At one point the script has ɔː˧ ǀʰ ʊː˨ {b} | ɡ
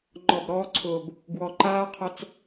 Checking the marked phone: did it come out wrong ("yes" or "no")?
no